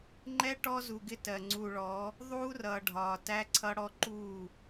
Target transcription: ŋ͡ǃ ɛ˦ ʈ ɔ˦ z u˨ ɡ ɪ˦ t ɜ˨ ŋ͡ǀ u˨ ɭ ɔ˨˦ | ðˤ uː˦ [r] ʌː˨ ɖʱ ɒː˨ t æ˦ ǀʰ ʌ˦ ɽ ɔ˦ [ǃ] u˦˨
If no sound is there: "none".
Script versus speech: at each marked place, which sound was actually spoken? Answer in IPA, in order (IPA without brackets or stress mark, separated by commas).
r, ǃ